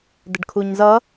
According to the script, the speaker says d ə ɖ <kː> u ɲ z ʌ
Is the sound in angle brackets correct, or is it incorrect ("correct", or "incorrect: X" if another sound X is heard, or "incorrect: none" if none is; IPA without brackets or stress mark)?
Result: incorrect: kʰ